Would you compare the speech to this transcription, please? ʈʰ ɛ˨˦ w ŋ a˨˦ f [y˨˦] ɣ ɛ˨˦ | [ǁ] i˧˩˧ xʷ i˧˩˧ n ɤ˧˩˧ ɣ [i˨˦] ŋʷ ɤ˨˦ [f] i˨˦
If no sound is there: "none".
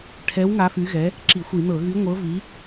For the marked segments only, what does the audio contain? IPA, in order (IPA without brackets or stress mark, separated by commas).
y˨˦, ǁ, y˨˦, v